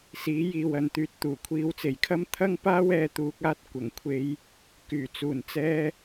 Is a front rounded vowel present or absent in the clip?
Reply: present